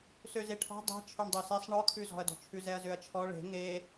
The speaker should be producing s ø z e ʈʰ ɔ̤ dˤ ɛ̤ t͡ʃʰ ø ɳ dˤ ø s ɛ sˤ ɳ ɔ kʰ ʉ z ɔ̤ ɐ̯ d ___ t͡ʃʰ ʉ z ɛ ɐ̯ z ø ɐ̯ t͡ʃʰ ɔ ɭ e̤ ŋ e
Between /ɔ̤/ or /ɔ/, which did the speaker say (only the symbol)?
ɔ̤